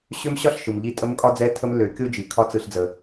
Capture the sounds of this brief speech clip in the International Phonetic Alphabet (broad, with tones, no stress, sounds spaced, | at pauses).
ɕ ø˦ m ɕ ɒ˦ ɬ ʃ ɯ˨ m ʎ i˦˨ tʼ ə˦ m kʼ ɒ˦ d͡z ɛ˦ tʰ ə˦ m lː ø˨˦ kʲ o˦ d͡ʒ i˨ kʰ ɒ˦ t͡s ɯ˦ ɬ d͡z ə˦